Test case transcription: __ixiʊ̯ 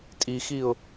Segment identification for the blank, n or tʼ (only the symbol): tʼ